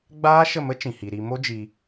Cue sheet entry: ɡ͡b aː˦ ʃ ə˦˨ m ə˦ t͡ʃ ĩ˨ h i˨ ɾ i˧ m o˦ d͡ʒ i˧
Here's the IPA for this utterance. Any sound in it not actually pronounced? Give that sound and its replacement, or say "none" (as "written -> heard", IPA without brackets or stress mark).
none